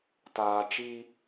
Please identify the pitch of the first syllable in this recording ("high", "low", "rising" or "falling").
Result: low